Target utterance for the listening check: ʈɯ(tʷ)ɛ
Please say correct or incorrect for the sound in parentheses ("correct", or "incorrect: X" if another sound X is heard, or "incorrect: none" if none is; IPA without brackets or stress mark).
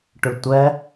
correct